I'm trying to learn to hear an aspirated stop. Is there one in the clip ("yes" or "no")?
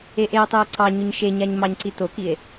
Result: no